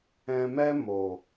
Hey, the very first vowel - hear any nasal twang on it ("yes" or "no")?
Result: yes